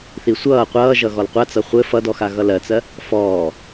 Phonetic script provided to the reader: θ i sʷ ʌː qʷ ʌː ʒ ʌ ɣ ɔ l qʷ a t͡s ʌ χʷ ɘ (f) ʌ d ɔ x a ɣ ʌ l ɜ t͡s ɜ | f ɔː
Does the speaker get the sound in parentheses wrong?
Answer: no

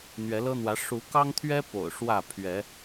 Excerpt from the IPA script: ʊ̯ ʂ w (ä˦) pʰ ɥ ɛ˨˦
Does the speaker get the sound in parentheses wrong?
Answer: yes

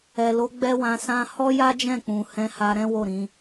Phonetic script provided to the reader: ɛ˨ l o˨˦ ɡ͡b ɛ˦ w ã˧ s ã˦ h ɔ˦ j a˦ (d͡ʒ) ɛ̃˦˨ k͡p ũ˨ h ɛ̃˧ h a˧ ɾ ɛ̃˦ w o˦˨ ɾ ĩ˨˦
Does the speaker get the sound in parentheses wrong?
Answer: no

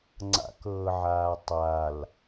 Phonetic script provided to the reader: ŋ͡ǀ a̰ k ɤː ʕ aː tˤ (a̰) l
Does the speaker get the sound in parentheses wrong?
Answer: yes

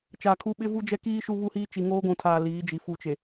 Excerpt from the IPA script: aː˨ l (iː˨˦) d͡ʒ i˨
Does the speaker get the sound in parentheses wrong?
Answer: no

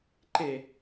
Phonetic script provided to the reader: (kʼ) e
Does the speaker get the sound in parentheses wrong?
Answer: yes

